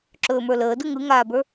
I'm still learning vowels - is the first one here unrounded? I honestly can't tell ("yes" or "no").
no